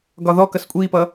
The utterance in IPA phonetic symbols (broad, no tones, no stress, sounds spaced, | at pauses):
ɡ ɒ ð ɔ k ʌ s kʷʼ i p ʌ